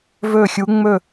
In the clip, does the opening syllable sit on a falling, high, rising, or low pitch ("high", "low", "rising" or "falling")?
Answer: falling